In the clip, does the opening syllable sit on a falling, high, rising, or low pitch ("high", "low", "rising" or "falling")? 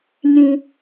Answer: low